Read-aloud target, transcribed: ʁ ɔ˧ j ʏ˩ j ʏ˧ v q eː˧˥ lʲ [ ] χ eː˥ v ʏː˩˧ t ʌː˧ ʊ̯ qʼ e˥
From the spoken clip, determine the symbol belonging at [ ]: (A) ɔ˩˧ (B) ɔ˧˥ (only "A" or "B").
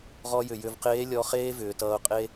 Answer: B